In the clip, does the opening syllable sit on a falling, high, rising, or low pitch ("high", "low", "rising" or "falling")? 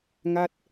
falling